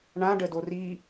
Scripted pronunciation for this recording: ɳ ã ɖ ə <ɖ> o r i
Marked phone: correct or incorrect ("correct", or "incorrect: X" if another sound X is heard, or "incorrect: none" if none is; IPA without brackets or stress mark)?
incorrect: d